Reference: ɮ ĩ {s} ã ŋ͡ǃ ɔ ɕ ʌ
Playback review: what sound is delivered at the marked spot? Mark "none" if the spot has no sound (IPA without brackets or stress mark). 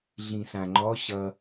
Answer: s